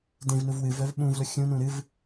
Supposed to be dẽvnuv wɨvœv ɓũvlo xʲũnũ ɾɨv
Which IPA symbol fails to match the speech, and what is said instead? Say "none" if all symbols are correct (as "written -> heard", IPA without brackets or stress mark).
none